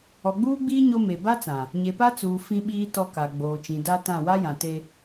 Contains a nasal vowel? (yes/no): yes